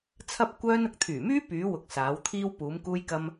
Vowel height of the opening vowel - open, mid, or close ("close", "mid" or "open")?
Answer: open